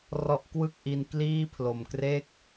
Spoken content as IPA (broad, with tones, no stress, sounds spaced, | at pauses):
r ɔ˦˥ ʔ k w ɯ˥˩ k̚ ʔ i˧ n k l iː˥˩ pʰ l o˨˩ m k r eː˥˩ k̚